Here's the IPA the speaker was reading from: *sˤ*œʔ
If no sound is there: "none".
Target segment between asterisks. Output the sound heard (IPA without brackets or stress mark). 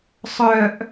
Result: sˤ